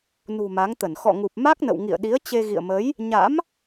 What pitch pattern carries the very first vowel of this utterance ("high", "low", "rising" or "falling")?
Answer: low